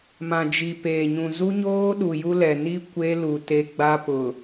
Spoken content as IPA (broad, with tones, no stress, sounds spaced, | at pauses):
m ã˨ d͡ʒ i˨ p eː˨ ɲ ũ˨ z u˦ ɲ oː˦ ɗ u˨ j u˦ l ɛ˨ n i˦ kʷ e˦ l u˨ t e˦ ɡ͡b a˦ p ʊ˨